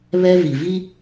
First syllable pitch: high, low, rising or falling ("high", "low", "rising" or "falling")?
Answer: high